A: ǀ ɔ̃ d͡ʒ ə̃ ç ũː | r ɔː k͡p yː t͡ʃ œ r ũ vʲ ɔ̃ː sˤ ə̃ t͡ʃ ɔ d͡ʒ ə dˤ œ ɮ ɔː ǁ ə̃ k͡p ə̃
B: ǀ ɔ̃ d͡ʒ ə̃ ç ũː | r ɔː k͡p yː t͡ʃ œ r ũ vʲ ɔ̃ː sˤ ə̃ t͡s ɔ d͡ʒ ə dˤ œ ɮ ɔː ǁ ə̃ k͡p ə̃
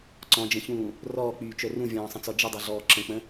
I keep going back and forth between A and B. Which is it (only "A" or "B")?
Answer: B